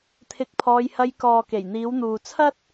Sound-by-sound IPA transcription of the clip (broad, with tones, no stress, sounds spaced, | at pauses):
t̪ʰ ɪ˧ k̚ pʰ ɔː˧ j h ɐ˧ j k ɔː˨ k e˨˩ j n̪ iː˨˧ w n̪ uː˨ t͡sʰ ɐ˥ t̚